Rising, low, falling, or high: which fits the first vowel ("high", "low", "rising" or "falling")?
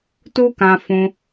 high